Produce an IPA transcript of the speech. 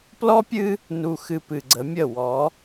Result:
p l ɔ˦ pʲ ɨ˦ | n u˨ x ɨ˨ p ɨ˨ ɡ͡ǀ ə˨˦ mʲ ə˦˨ w ɔ˨˦

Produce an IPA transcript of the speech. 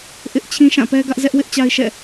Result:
ʔ ɪ˦ ʔ t͡ɕʰ ĩ˦ ʃ ã˦˨ p ɛ˦ ɡ ä˦ ʔ z ɛ˦ ʔ w ɪ˦ ʔ t͡ɕ a˦ ɪ̯ ʃ ɛ̰˦˨

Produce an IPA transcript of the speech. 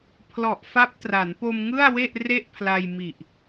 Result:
pʰ l ɔ˨˩ ʔ f a˦˥ p̚ t r a˩˦ n p o˧ m ŋ ɯ˥˩ a̯ w e˥˩ ʔ r e˥˩ ʔ pʰ l a˧ j m i˨˩ ʔ

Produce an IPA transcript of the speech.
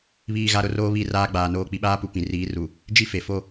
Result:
β iː˨ ɣ a˨ ɾ ʊ˨ r oː˦ β i˦˨ r aː˦ ɡ͡b aː˨ n oː˨ k͡p i˨ ɓ aː˦ p u˨ p ĩ˨ r iː˨˦ r u˨ | d͡ʒ i˦ f e˨ f o˦

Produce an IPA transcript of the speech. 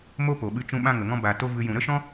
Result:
m o˦ p o˨ ɓ ɨ˧ t͡ʃ ũ˧ ɓ ã˦ ŋ ə˨ ŋ ɔ̃˦ b a˨ t o˦ v ɨ˧ j ũ˨ ɾ ə˦ ʃ ɔ̃˦

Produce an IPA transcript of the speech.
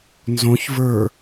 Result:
n z õ ç v ə˞

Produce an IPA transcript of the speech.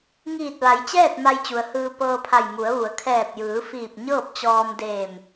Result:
ŋ iː˧˩ t̚ ʋ a˩˧ j t͡ɕ ɛː˥˨ t̚ m a˧ j t͡ɕ u˩ ə̯ h ɯː˧ p ɤː˧ pʰ a˧˩ j m u˩˧ ə̯ ʋ u˩˧ ə̯ kʰ ɛː˧˩ p̚ j ɯː˩˧ f iː˧˩ p̚ ɲ ɤː˥˨ p̚ t͡ɕ ɔː˧ m d eː˧˩ m

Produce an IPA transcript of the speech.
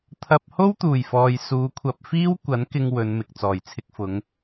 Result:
t̪ʰ ɐ˧ p̚ h o˥ w t̪ uː˨˩ j f ɔː˨ j s uː˨˧ kʷʰ ɐ˧ p̚ f iː˥ w kʷ ɐ˨˥ n k ɪ˧ ŋ w ɵ˨˧ n m ɪ˨ k̚ t͡s ɔː˨˩ j t͡sʰ ɪ˧ k̚ f ʊ˨˧ ŋ

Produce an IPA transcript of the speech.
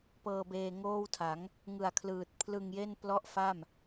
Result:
p ɤː˧ b eː˧ ŋ oː˥˩ w tʰ a˩˦ ŋ | ŋ ɯ˨˩ a̯ kʰ l ɯː˨˩ t̚ pʰ l ɯ˧ ŋ j e˥˩ n p l ɔ˥˩ ʔ f a˥˩ m

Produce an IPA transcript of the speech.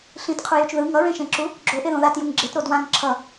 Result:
ɬ ĩ t qʰ u j u t͡ʃ ð ɯ ŋ ʌ ɹ ẽ ʃ ẽ ǁ u | ɡ͡ǁ o ʔ e ð õ ð a t j u ŋ ɡ͡ǁ e t ɾ o d w ã ŋ ǁʰ ʌ

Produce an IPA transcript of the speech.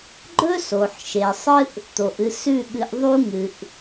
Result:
ɡ͡ǃ ɵ˦ s o˨ ħ ʃ e˨ sˤ ɨ˦ ʔ | t̪ o˨ ʔ ɨ˧ s ʉ˦˨ ɠ ɨ˧ ʔ ðˤ u˦ ŋ ɨ˨ ʔ

